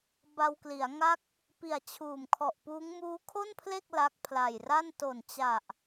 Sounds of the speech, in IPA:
b a˧ w k l i˩˦ a̯ ŋ a˥˩ k̚ | p i˨˩ a̯ t͡ɕʰ uː˨˩ m kʰ ɔ˨˩ ʔ p uː˦˥ ŋ m uː˦˥ kʰ o˥˩ n pʰ l e˥˩ k̚ l a˦˥ k̚ pʰ l a˨˩ j r a˥˩ n t o˨˩ n t͡ɕ a˨˩ ʔ

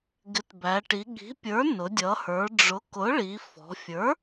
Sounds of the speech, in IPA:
ɡ ɪ˩˥ t b æ˩˧ ʈ i˩˧ ɠ i̤˩˥ pʲ ə˞˩˥ n ʊ˩˧ dʲ ʌ˩˧ h ə˞˩˧ ɖ͡ʐ ʊ˩˥ k ʊ˩˥ ɭ i˩˧ f ɔ̤˩˧ fʲ ə˞˩˥

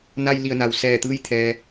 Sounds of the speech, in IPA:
n a˧ j l i˧˩ ə̯ n a˩ w s ɛː˧˩ t̪ ɯː˥˨ j t̪ʰ ɛː˩

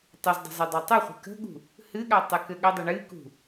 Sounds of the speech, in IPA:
tˤ ɨ z dˤ o̤ z ɨ dˤ a tˤ u χʷ ə̤ k ə̤ ɠ ṳ | h ɨ ɠ a tˤ ɨ k ɘ ɠ ə dˤ ʏ ɳ ɨ k ṳ

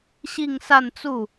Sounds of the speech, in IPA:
ɕ i˥˧ ŋ s a˥˧ n t͡s u˥˩

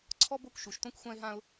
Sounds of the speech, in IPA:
ǀʰ ɔ˥ b o˥ kʷ ʃ u˩ ʃ t õ˥ kʷ xʷ ã˥ ɪ̯ ɦ ã˥ ʊ̯

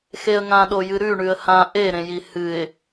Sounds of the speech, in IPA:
x e ə̯ ŋ ã ɗ o j ɨ ɾ ʉ ɳ ʉ ə̯ h ã ʔ e ɾ ẽ j i h ɨ ɪ̯

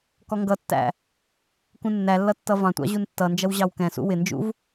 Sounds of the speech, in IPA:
k ɔ ŋ ɡ ʌ tː æ̰ | k ũ nː æ lː ʌ tː ʌ v ɑ̃ tʷ ɑ̰ ʑ u n tː ʌ n d͡ʒ ʌ w ʑ ɑ w k ɛ̃ s ṵ w ɪ n d͡ʒ ṵ v

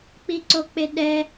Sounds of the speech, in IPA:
k͡p i ǀ o k͡p e ɗ ɛ

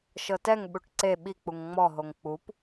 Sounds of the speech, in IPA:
ʃ ɤ t ɛ ŋ ɓ u ʈ ǀ e ɓ i k͡p u ŋ ŋ͡m ɔ ɦ o ŋ k͡p u p

